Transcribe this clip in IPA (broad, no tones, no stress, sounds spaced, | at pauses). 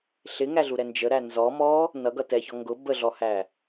ɬ ɪ ŋ æ ɮ u ɾ ɛ n d͡ʒ ə ɾ æ n z ɔ m ɔ | n ʌ ɡ ʌ t ɛ ç ɔ ŋ ɡ ʊ b ə ɮ ɔ h æ